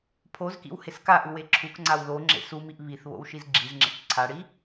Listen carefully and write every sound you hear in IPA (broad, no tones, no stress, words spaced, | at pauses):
pʰozkḭw heskaʔu weǁʰukŋ͡ǀaw ðo ŋ͡ǁḛsumiʔ βiθ βo̰wʃizɡ͡ǁizŋ͡ǁḛk ǀʰaɽi